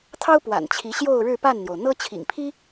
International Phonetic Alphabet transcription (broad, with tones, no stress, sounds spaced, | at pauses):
t̪ʰ ɑ˥ ʊ̯ p w a̰˨˩ n t͡ɕʰ i˧˥ ɕ j o˥˧ ʊ̯ ɻ ɻ̩˥˧ p a˥˩ n n̪ j o˩ ʊ̯ n̪ ɤ˥ t͡ɕʰ ḭ˨˩ ŋ pʰ i˥